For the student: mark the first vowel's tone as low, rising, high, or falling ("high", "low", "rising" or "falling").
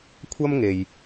high